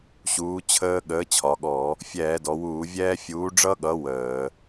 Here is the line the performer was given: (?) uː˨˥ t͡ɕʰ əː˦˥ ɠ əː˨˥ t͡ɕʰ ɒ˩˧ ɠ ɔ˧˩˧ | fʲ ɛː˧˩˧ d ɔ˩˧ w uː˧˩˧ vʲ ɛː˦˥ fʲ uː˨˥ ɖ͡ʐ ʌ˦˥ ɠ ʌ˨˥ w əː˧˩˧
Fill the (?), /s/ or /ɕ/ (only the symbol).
ɕ